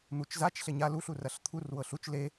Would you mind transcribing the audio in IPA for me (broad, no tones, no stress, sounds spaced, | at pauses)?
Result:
n̪ u t͡ʃ z a t͡ʃ ɬ e ɲ a l u ɬ u r ɐ ɬ t̪ʰ u r w ɤ ɬ u t͡ʃ l e